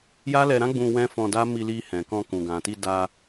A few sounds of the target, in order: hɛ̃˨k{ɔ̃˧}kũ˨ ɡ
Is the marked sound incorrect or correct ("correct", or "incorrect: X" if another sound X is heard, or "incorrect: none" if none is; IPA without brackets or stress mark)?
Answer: correct